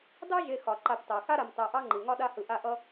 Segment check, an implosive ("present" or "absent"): present